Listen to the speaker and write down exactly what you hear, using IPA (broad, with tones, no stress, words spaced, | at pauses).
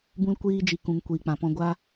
bũ˦lkʷiː˦d͡ʒi˧ kũ˧ŋkʷiː˧k͡pã˧pɔ̃˦ ɡʷa˦